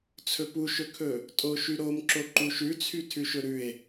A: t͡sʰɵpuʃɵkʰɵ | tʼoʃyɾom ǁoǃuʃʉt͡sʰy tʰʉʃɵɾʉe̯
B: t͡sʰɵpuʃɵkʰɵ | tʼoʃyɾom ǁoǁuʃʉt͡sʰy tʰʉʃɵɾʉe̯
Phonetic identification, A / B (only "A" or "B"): A